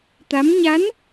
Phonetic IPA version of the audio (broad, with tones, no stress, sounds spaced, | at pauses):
t̪ a˧˥ m ɲ a˧˥ n